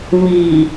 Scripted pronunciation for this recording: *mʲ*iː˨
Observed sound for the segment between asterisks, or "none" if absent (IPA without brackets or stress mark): m